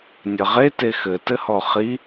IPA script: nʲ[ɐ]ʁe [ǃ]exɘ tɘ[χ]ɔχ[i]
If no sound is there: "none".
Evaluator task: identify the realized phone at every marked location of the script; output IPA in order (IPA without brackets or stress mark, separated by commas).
ɐ, t, h, i